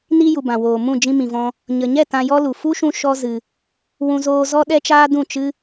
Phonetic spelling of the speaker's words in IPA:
n i˧ j u˨ b ã˨ w oː˨ m ũ˦˨ d͡ʒ ĩ˧ m ĩ˨ v ɔ̃˧ | ɲ ə˨ ɲ ɛ˦˨ t ã˧ j ɔ˦ l u˨ f u˦ ʃ ũ˧ ʃ ɔ˦ z ɨ˧ | w ũ˧ z oː˧ z ɔ˦ ɗ ɛ˦ t͡ʃ aː˦ d ũ˦˨ t͡ʃ ɨ˦

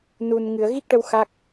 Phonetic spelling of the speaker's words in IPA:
n u˨˩ n ŋ ɨ˨˩˨ ə̯ ɣ i˦˥ k̚ ʈ ə˧ w x a˦˥ k̚

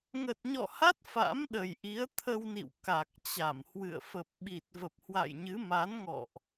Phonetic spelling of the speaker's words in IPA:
ŋ ə˨˩ t̚ ɲ ɔ̰˧˨ h a˦˥ t̚ f a̰˧˥ m ɗ ə˨˩ j ʔ i˨˦ ə̯ t̪ʰ ə˧ w n ḭ˧˨ w k a˨˩ k̚ t͡ɕ a˧˩ m h w ɨ̰˧˨ ə̯ f ə˨˩ p̚ ɓ i˨˩ t̚ v ə˨˩ p̚ h w a̰˧˨ j ɲ ɨ˨˦ m a˨˦ n ŋ ɔ̰˧˨ ʔ

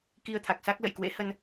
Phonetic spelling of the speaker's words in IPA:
k i˧ ə̯ t̪ʰ a˨˩ k̚ s a˦˥ k̚ l ə̰˧˨ j k w ḛ˧˥ h ə˧ n

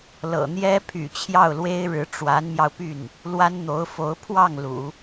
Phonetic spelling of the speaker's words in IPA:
l ɤ̰˨˩ n̪ j ɛ˥ pʰ y̰˨˩ t͡ɕʰ j ɑ˥˩ ʊ̯ l w e˥ ɪ̯ ɻ ɻ̩˧˥ ʈ͡ʂ w a˧˥ n m j ɑ˧ ʊ̯ p y˥˩ n | l w a˥ n n̪ o˧˥ ʊ̯ f o˧˥ ʊ̯ pʰ w ɑ˥˩ ŋ l ṵ˨˩˦

